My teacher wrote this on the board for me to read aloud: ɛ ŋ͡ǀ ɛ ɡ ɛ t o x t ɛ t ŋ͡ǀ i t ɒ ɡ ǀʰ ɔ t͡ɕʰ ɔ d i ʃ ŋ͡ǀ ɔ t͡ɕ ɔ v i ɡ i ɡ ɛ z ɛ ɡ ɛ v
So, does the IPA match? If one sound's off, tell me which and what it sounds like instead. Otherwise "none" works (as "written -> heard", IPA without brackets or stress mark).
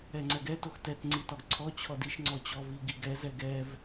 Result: none